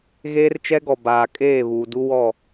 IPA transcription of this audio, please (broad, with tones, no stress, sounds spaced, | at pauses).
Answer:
ɣ eː˦ r t͡ʃ ɛ˦ ɡ ɔ˨ b aː˨ kʼ eː˦˨ β uː˨ d u˦ w ɔ˦˨